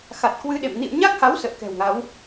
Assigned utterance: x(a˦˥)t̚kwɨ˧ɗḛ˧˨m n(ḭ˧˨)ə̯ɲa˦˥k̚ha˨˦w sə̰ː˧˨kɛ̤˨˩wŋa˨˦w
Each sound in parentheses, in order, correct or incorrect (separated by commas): incorrect, correct